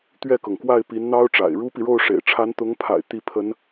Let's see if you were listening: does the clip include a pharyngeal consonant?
no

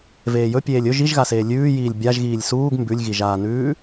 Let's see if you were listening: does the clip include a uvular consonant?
no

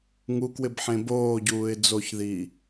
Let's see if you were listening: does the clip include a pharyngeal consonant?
yes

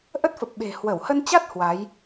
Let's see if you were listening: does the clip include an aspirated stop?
no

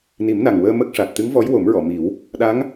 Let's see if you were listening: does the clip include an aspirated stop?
no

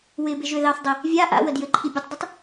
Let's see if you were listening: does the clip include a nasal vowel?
no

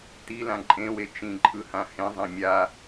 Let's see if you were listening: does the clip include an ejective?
yes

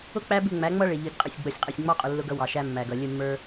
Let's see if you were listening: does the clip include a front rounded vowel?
no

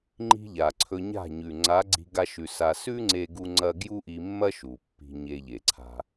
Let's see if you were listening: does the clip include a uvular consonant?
no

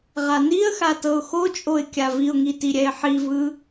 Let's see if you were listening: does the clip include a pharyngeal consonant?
yes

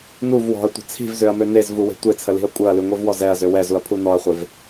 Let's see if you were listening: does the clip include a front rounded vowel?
yes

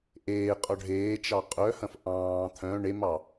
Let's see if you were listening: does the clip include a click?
no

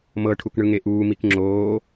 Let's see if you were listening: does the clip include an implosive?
no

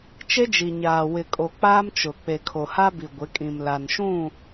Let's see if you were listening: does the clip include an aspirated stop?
yes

